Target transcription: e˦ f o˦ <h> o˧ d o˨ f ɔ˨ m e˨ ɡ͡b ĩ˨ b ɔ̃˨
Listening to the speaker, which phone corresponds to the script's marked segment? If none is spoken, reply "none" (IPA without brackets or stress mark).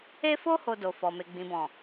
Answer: h